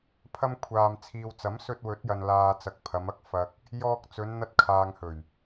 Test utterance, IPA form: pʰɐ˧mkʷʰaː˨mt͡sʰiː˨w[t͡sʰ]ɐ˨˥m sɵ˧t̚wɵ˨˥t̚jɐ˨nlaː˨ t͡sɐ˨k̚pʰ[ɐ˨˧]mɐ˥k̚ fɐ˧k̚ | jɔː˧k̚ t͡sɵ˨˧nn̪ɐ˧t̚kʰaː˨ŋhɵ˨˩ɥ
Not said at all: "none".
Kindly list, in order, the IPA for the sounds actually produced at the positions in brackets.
t͡s, ɐ˨˧

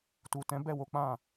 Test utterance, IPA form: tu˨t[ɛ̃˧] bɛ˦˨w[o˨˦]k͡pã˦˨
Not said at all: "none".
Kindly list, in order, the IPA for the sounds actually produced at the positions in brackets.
ɛ̃˨˦, o˨˦

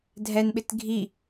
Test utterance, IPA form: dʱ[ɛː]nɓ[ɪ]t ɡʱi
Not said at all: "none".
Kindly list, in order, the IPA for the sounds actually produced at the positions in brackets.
ɛ, ɪ

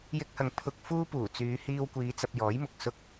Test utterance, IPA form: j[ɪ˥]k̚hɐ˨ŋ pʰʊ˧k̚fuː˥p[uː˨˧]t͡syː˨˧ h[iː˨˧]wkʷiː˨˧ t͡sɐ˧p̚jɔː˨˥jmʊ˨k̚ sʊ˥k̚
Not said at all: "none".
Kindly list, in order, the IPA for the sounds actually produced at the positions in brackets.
ɪ˧, uː˨˩, iː˧

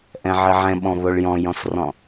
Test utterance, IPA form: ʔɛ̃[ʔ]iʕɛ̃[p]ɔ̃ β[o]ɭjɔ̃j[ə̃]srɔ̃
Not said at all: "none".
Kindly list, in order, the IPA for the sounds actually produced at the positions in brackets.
ʕ, ɓ, o, ɔ̃

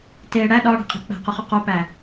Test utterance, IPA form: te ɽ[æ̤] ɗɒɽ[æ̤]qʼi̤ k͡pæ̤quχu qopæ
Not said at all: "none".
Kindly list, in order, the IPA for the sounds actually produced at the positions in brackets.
æ, æ̤

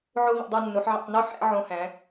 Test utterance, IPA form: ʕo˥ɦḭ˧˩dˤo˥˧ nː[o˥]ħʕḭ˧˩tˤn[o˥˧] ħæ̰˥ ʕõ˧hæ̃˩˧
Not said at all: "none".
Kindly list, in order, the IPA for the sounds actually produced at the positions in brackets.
o˩˧, o˥˧

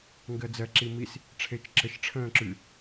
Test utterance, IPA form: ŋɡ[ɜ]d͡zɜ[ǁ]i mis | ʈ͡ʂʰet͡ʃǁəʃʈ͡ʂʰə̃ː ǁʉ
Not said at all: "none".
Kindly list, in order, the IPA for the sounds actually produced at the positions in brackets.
ɜ, ǁ

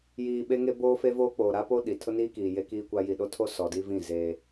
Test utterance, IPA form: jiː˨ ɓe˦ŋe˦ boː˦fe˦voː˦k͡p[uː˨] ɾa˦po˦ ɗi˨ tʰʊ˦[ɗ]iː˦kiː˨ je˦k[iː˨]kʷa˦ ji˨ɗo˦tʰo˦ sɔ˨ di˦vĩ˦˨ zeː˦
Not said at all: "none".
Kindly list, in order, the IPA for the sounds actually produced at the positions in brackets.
oː˨, n, iː˦

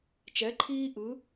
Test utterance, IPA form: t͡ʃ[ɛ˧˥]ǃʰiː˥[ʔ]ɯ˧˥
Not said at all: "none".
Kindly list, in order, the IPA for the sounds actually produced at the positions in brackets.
ɛ˧˥, ʔ

